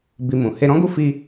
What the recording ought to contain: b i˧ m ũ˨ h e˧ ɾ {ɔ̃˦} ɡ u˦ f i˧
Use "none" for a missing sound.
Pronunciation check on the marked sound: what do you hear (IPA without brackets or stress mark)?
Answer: ɔ̃˦